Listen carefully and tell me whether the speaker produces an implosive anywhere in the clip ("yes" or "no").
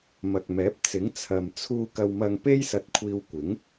no